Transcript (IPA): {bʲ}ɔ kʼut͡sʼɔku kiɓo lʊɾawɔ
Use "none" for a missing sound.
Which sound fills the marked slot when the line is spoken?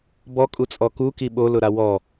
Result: b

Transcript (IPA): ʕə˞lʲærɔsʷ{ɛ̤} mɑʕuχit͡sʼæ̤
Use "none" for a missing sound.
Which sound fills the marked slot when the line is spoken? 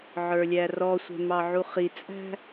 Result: ɛ̤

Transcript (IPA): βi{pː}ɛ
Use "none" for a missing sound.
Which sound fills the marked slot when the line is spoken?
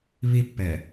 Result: pː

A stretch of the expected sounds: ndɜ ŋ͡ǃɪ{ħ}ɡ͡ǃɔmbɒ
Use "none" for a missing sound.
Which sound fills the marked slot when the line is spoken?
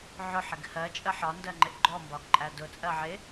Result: ʔ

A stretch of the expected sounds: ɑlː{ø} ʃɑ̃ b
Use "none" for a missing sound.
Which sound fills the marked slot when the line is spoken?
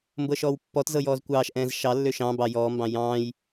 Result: ø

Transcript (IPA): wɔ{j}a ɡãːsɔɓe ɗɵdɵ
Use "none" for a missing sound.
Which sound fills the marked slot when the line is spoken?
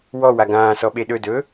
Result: w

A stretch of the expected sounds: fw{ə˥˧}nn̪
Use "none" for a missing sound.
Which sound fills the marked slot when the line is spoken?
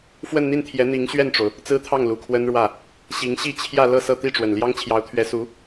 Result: ə˥˧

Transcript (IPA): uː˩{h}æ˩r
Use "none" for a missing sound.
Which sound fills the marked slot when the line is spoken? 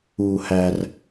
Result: h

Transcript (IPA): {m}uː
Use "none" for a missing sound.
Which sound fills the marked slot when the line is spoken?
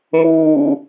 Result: m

